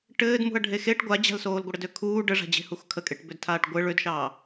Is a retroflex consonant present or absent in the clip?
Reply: present